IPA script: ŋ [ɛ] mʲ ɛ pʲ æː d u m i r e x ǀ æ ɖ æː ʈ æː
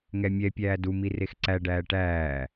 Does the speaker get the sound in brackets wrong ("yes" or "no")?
no